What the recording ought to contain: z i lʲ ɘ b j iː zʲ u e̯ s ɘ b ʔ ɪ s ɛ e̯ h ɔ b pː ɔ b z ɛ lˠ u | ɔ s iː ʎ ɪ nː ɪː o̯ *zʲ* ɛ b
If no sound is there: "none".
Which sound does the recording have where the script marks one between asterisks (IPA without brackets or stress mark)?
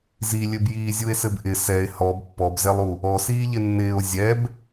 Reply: zʲ